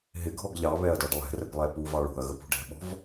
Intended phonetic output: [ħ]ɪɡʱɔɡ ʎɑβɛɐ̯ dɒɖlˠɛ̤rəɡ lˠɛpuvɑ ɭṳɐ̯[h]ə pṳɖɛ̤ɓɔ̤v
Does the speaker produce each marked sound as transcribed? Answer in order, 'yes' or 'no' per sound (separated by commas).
no, no